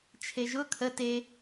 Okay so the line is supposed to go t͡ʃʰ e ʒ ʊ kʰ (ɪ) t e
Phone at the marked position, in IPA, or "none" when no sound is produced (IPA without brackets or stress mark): ə